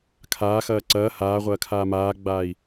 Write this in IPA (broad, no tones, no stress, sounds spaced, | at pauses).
kʰ aː x ɐː ǀ ɐː h aː ʁʷ ɐː kʰ aː m aː ɡ͡b aː i̯